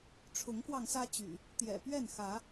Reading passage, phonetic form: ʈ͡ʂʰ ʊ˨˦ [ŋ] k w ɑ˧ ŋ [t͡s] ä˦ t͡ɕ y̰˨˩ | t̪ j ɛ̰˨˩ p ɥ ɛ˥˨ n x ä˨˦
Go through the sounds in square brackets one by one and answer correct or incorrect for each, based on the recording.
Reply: correct, incorrect

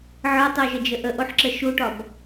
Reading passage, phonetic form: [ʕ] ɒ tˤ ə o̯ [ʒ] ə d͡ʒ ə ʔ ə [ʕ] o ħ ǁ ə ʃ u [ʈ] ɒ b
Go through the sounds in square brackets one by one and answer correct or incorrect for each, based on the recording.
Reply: correct, correct, incorrect, correct

